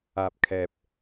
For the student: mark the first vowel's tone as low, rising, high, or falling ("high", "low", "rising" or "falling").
low